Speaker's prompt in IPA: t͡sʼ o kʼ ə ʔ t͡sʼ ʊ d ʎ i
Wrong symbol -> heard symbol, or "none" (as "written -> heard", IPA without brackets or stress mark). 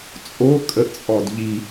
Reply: ʊ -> ɔ